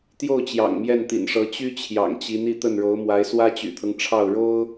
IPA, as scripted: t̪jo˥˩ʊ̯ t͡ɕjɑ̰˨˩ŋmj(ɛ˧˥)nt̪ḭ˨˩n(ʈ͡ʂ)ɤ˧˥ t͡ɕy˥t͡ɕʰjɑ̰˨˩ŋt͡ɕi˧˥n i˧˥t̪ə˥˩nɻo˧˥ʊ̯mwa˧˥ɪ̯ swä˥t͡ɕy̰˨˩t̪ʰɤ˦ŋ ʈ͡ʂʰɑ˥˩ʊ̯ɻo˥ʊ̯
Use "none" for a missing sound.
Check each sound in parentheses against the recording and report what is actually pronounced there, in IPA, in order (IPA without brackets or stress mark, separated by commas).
ɛ˥˩, ʂ